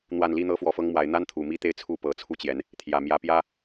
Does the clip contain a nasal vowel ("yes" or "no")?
no